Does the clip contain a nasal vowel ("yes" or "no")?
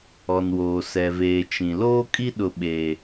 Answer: yes